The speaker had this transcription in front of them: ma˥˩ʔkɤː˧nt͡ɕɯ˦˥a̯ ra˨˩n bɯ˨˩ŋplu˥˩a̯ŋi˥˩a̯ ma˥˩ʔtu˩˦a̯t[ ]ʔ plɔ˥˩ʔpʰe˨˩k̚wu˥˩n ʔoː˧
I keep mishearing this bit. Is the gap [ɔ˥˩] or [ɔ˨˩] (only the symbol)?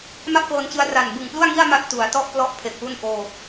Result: ɔ˥˩